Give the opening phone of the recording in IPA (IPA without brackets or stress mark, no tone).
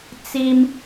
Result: t͡s